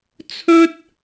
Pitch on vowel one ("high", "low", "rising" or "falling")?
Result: high